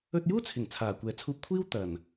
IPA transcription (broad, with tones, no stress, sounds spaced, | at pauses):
ɵ˧ t̚ j uː˥ t͡sʰ ɪ˨˩ ŋ t͡sʰ aː˨˩ kʷ ɛː˨˥ t͡sʰ uː˧ p̚ kʷʰ iː˥ w t̪ ɐ˨˩ n